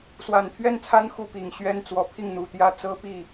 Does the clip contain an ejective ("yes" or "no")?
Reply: no